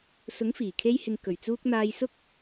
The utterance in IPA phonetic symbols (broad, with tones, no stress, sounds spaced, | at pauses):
s ʊ˨˥ ŋ f iː˨˩ kʰ e˧ j h ɪ˨ ŋ k ɵ˨˩ ɥ t͡s uː˧ k̚ n̪ aː˧ j s ʊ˥ k̚